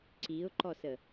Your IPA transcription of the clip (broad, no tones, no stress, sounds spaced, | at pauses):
ǀ i ʊ̯ ǃ ɔ s ə